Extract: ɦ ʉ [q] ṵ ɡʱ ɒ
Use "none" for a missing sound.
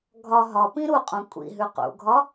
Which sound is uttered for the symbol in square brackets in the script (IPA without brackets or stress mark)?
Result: q